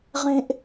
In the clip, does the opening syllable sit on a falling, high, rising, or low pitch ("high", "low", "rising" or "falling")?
high